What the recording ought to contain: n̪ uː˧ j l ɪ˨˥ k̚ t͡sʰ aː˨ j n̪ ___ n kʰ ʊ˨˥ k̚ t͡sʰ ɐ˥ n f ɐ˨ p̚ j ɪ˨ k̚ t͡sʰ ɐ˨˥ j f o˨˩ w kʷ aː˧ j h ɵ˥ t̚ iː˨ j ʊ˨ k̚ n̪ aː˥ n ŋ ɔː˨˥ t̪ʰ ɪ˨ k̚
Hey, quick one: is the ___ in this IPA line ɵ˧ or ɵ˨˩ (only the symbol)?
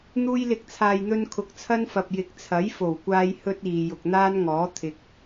ɵ˧